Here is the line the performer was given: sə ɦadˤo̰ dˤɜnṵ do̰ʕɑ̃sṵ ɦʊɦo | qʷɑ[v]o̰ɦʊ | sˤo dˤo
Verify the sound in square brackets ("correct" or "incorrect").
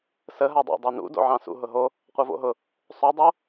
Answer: correct